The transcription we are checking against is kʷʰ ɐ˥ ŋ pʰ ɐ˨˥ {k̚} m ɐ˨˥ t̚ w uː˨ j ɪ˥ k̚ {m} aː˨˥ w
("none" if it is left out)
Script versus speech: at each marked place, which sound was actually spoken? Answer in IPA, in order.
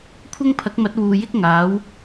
k̚, ŋ

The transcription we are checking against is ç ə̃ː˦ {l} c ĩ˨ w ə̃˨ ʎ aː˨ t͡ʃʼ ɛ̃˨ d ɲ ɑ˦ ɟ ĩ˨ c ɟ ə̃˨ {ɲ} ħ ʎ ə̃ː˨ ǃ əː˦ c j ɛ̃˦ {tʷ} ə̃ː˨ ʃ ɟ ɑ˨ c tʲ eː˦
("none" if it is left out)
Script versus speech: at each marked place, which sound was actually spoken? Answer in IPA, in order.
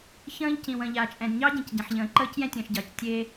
ʎ, none, tʲ

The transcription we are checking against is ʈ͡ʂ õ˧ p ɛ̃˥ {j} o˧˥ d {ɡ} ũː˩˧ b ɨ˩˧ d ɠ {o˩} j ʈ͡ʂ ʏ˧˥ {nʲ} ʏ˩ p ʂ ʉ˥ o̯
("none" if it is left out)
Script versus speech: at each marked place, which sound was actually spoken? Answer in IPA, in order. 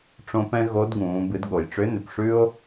ɣ, ɡ, o˩, n

